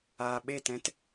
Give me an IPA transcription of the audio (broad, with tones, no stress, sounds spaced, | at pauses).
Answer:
aː˨ ɓ e˦˨ t ɛ̃˧ t